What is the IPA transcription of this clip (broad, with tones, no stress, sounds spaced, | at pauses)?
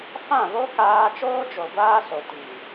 f ã˦˨ β o˦ k aː˦ t͡ʃ oː˦ d͡ʒ o˨ ɡʷ aː˦ s o˨ t i˨